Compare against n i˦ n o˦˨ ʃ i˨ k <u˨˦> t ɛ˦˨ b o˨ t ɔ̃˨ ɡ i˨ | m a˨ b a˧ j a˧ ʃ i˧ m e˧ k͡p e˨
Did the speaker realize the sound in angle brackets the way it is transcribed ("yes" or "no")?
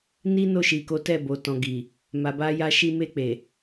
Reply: no